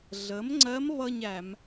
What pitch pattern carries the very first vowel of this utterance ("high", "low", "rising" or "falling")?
rising